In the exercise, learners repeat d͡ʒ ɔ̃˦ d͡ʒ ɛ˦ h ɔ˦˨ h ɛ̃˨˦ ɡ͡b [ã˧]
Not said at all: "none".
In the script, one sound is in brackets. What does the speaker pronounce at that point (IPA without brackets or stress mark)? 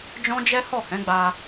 a˧